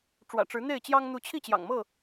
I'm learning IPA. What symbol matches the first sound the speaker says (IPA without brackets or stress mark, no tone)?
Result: ʈ͡ʂ